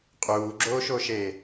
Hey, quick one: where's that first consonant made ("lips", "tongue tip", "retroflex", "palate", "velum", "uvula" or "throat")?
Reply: uvula